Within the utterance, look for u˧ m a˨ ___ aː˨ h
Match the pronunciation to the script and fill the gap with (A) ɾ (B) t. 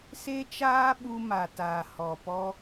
B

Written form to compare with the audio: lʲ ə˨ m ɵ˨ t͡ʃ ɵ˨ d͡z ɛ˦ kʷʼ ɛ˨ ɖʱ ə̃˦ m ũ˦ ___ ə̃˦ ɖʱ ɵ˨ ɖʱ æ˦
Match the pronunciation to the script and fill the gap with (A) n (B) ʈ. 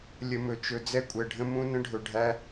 A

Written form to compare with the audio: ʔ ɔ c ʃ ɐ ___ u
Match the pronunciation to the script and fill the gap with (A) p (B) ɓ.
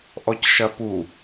A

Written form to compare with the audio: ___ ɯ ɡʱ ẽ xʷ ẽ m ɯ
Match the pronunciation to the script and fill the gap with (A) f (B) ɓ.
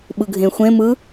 B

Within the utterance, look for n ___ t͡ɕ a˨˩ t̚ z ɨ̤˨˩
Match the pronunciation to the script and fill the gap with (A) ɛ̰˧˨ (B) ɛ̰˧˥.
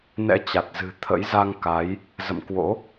B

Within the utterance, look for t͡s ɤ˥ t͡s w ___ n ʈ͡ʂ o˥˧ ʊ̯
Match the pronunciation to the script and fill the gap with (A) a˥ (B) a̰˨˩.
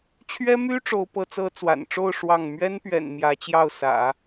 B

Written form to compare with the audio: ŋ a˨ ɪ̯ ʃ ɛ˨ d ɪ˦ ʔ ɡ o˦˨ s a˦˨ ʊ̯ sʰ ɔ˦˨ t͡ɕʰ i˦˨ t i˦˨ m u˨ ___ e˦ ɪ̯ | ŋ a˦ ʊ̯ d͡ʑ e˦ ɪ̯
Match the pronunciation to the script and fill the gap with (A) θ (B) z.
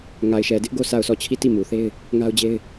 A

